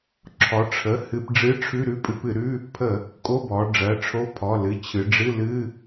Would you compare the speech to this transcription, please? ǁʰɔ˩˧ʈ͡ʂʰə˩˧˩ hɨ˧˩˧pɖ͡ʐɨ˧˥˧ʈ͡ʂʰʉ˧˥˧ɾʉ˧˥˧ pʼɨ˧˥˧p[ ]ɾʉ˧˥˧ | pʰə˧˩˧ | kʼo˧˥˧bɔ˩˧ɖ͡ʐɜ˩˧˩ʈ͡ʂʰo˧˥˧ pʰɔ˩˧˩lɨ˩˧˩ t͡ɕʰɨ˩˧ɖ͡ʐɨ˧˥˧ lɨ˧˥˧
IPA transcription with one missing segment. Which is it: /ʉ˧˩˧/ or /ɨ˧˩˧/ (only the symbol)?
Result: ɨ˧˩˧